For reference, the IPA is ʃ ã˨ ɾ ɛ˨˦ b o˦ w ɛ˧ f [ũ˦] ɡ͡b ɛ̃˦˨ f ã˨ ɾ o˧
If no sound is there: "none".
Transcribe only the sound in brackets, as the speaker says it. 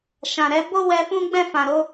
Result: ũ˦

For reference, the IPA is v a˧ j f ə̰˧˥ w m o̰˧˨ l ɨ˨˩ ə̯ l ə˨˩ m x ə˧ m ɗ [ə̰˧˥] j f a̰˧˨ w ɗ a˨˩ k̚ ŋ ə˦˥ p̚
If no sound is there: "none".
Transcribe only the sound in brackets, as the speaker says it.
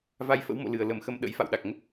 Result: ə̰˧˥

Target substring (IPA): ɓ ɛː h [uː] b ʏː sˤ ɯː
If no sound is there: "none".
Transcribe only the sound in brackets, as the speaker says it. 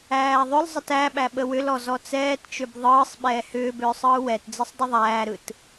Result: ʏː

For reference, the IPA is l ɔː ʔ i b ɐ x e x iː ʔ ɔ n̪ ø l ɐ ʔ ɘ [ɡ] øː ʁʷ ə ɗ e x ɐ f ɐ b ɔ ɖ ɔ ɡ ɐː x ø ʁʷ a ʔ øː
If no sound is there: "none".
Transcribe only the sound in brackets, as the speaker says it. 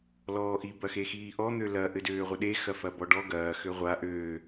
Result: d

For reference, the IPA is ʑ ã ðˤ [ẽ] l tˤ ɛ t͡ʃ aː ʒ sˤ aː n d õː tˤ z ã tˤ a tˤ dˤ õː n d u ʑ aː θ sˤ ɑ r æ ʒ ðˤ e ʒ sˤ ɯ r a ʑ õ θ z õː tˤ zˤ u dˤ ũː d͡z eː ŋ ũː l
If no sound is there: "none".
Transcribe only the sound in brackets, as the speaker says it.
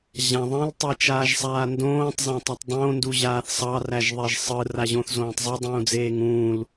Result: ẽ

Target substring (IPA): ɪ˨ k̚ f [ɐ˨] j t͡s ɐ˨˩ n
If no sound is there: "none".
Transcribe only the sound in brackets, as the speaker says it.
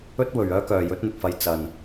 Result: ɐ˨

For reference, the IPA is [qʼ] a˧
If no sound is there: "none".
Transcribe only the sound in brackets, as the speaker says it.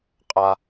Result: qʼ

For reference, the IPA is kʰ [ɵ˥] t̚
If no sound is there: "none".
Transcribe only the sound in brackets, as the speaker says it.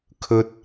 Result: ɵ˥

